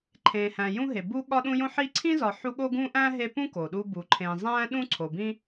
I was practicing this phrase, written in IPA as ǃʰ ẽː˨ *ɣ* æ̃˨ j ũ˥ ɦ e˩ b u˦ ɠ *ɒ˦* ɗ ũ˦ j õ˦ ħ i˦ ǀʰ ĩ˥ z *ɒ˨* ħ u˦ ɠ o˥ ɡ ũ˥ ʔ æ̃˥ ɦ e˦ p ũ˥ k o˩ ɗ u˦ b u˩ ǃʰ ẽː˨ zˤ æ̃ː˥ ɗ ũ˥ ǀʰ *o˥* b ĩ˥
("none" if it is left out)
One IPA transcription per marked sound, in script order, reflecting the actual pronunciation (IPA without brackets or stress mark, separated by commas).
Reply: h, ɒ˦, ɒ˨, o˩